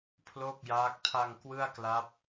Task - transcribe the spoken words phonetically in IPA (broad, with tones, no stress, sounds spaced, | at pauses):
pʰ l oː˥˩ k̚ j aː˦˥ k̚ tʰ a˧ ŋ k w ɯ˥˩ a̯ k l a˦˥ p̚